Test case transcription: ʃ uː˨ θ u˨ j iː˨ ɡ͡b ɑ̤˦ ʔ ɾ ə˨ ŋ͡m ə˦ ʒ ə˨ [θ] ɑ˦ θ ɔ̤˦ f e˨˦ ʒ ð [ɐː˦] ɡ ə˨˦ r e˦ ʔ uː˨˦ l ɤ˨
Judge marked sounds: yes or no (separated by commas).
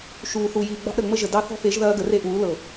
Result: no, yes